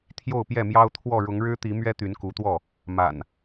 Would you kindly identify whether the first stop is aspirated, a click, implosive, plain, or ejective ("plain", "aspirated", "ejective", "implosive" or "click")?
aspirated